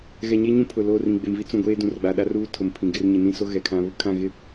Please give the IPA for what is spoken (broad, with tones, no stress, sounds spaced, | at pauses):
ɣ ɛ˨ ɲ e˦ ɲ ũ˦ pʰ ʊ˨ l o˦˨ r ĩ˨ ɡ͡b e˨ m v i˦ t͡s ũ˨ ɡʷ eː˦ d ũ˨ r ɡ͡b a˨ ɗ a˦ r uː˦ tʰ ʊ˨ m pʰ ĩ˨ ɡ ɪ˦ r ɲ ɪ˨ n ĩ˦ s o˦ ɣ ɛ˨ kʰ ã˦ β ʊ˦ kʰ ã˦˨ ɣ ɪ˦˨